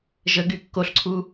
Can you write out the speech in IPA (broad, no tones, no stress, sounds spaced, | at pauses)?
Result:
ʒ ə ɡ y kː o ɬ ǀʰ u